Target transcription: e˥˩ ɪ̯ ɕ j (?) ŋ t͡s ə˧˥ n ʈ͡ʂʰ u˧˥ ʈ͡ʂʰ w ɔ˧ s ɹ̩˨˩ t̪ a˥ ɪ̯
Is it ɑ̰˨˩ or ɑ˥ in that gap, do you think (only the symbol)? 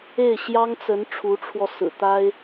ɑ˥